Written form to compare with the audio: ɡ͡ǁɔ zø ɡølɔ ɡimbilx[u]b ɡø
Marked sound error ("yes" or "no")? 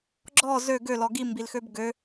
yes